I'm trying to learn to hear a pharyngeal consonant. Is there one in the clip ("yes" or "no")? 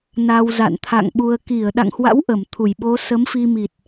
no